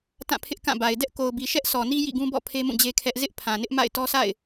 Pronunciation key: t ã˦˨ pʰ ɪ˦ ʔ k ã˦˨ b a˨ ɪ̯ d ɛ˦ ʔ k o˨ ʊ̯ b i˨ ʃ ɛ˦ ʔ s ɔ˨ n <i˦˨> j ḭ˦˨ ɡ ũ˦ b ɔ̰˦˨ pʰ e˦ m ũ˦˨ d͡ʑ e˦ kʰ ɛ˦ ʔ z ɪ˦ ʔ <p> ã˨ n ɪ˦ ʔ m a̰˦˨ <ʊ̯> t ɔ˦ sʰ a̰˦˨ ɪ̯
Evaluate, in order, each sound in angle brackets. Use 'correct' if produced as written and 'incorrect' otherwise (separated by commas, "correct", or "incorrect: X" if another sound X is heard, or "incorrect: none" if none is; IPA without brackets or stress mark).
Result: incorrect: i˦, incorrect: pʰ, incorrect: ɪ̯